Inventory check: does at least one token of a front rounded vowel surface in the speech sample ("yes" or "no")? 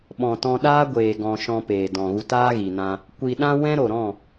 no